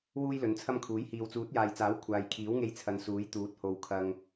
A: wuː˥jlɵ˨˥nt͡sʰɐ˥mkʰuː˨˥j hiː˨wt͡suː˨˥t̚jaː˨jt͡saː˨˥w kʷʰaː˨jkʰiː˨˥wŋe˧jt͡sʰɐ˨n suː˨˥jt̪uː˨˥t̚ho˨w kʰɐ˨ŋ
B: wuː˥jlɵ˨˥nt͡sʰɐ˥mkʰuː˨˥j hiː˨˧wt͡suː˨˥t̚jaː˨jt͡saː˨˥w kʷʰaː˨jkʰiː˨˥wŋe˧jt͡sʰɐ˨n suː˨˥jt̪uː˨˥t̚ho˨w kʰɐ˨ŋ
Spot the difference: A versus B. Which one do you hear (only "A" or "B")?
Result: A